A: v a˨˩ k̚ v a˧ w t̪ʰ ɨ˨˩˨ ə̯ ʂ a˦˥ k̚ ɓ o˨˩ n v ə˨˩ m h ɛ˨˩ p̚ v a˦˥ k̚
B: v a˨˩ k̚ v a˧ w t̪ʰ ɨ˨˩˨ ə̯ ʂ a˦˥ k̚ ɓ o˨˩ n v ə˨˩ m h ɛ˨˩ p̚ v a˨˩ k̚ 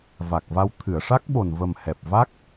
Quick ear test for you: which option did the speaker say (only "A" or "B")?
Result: A